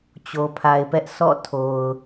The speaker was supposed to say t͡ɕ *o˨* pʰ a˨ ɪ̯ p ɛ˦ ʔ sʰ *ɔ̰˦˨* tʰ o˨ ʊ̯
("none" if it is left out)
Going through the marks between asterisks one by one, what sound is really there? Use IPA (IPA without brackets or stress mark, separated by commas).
o˨, ɔ̰˦˨